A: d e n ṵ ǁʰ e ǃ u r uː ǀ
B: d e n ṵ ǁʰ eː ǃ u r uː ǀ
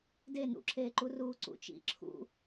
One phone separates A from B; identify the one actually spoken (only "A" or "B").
B